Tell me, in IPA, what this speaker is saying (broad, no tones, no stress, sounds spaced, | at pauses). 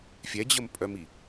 fʲ ɛ d͡ʑ ə m pʼ œ m i